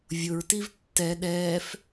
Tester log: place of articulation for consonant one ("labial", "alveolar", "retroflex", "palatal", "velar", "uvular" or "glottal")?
labial